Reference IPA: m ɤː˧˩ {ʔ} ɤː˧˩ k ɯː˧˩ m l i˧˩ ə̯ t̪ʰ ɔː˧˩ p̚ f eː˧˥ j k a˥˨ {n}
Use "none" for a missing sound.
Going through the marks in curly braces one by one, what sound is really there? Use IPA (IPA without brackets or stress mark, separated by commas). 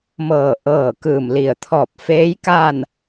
ʔ, n